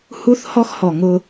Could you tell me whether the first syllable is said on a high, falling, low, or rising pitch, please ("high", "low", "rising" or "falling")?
high